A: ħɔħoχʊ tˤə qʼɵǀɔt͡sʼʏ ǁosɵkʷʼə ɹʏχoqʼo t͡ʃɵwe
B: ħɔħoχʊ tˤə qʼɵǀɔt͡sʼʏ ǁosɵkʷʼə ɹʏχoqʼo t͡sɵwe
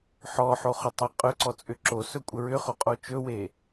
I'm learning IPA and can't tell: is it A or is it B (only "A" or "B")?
A